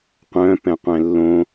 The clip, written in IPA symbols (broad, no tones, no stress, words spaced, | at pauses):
qʷœ̃ pɛ̃qʷɛ̃lːõ